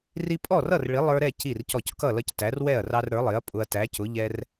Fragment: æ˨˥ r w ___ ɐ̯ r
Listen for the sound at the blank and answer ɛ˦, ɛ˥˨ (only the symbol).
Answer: ɛ˥˨